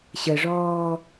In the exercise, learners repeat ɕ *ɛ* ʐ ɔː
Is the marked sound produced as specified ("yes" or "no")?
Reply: no